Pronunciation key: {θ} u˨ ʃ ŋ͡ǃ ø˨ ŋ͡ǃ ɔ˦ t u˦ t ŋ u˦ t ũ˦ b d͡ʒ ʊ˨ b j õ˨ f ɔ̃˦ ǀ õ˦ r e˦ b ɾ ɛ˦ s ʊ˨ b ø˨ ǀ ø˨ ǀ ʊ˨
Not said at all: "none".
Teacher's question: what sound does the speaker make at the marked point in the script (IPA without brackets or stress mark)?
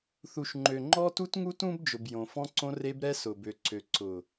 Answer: θ